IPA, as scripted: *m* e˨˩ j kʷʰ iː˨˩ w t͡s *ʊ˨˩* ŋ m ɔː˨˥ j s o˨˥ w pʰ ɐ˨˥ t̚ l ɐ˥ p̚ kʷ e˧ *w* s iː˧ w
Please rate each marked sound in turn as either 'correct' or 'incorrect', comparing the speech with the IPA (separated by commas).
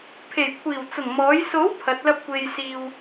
incorrect, correct, incorrect